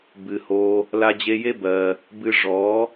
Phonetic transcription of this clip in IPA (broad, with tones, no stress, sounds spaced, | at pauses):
b ɨ˨ h o˧ | l a˧ d͡ʑ e˧ j e˦ b ɜ˧ | b ɨ˧ ʐ ɔ˨˦